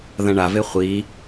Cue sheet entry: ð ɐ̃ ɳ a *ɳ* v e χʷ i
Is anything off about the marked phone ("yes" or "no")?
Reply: yes